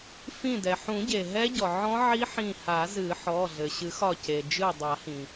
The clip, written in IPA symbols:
f ĩ˧˩ d ɛ˩ ħ ũ˨˩˦ ɟ e˩ ɦ ɛ˦˥ ɟ ɔ˩ ʕ ɔ̃˦˥ ʕ i˦˥ ħ ĩ˧˩ h a˨˩˦ z ɨ˨˩˦ ħ ɔ˩˧˩ ɮ ɘ˩ ɕ ɨ˨˩˦ x ɒ˧˩ c e˩ d͡ʒ ɨ˧˩ dˤ a˨˩˦ h ĩ˩

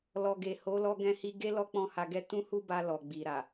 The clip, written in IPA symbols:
l ɔ˨ ɡ e˨ h o˨˦ l ɔ˧ ɡ ɛ̃˧ h i˧ ɡ e˦ l ɔ˦ k͡p ɔ̃˦˨ h a˧ ɡ ɛ˦ t ũ˦ h u˦ b a˧ l ɔ˨ ɡ͡b i˨ ɾ a˨

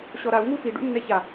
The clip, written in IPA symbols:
ɕ ɔ ɾ a u̯ ŋ u f i ɖ ṵ nː ɛ ç a

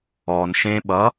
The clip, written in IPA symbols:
ɔ n ʃ ẽ ɓ ʌ

